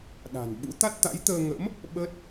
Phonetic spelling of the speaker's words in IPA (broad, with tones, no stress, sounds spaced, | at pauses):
ɗ a̤˨˩ n ɓ ṵ˧˥ t̪ a˦˥ t̚ t̪ a̰˧˥ j t̪ əː˧ ŋ ə̰˧˥ m | ɓ ə˦˥ t̚